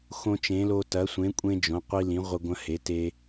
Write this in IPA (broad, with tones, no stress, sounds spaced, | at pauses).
x õ˦ t͡ʃ ẽ˨˥ l o˦ t ɐ˨˥ sʷ ẽ˨˥ kʷʼ ẽ˦ d͡ʒ õ˨˥ qʷ i˦ l ĩ˨˥ ʁʷ ɐ˦ ɡʷ ɐ̃˦ h e˨˥ t e˦